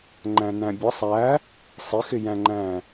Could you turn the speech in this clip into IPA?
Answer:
ŋ͡ǃæ̃næ̃bʲʌ sˤæ | sˤɪxɪjæ̃ŋ͡ǃæ̃

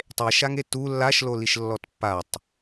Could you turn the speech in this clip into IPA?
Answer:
tˤeʃaŋe tu lːaʃloliʃ lːɔtpːatˤ

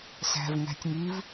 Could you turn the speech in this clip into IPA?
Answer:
sæ̤v ŋæ̤tʲŋiv

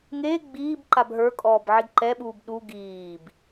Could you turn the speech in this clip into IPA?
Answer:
ŋe ɡ͡biːb ǃabɦə˞kʼɔːb ʕiɡǃɛɓuːb ɗu ɡiːb

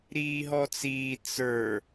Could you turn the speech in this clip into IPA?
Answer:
ɾiːɦɔt͡siː t͡sə˞

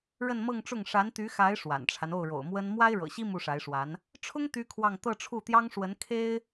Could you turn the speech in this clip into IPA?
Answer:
ɻə˥˧nmɤ˥˧ŋʈ͡ʂʊ˥˩ŋ ʂa˧˥nt̪y˧˥xa˧˥ɪ̯ ʂwa̰˨˩nʈ͡ʂʰa˦n o˥˩ʊ̯ɻo̰˨˩ʊ̯mwə˥n mwa˥ɪ̯ɻɤ̰˨˩ɕi˥ mu˥˩ʂa˧˥ɪ̯ʂwa˧˥n | ʈ͡ʂʰʊ˥ŋ t̪y˥kʰwɑ˥˧ŋ t̪ɤ˥˧ʈ͡ʂʰu˥˩t̪jɑ˥ŋʂwə˧˥n kʰe˥ɪ̯

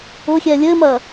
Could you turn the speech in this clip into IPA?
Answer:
ʊxʲɛ lʲɘmɐ

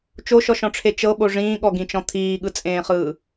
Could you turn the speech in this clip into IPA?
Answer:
t͡ʃoʃɔʃɔ̃ʈ͡ʂʰe t͡ʃɤɓo ʐĩːɠɔɡĩt͡ʃɔ̃ t̪ʰiːɠɯt͡sʼẽːχɯː

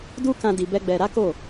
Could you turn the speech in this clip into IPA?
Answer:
du˦kã˧ di˧bɛ˦ɡ͡bɛ˧ ɾa˦ko˦˨

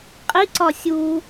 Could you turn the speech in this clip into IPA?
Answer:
qʼiǀɒ sʲu

